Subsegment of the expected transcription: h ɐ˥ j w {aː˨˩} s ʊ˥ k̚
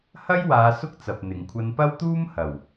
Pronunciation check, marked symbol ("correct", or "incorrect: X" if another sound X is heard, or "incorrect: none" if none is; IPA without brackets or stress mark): incorrect: aː˨˧